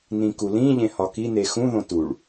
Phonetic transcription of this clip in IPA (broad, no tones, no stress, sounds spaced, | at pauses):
n ĩ k u l ĩ ʎ ẽ h ɒ k i n e x ũ ð õ t u ɭ